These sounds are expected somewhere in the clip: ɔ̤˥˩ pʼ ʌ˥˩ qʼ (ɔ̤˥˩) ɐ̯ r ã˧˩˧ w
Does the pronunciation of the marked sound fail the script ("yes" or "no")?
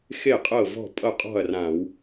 no